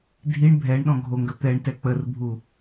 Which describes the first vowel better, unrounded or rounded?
unrounded